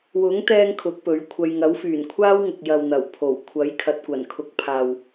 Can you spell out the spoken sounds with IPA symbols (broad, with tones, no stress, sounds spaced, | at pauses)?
w ʊ˨˥ ŋ t̪ ɛː˧ ŋ kʰ ʊ˨˥ k̚ p ɵ˨˥ ɥ kʷʰ ɐ˧ j ŋ ɐ˨˥ w f yː˨˩ n kʷʰ aː˥ w ŋ ʊ˨ k̚ j ɐ˨ w n̪ ɐ˨˩ w pʰ o˨˩ w kʷʰ ɐ˨˥ j kʰ ɐ˨ t̚ kʷ ɐ˨˩ n kʰ ʊ˨˥ k̚ pʰ aː˨ w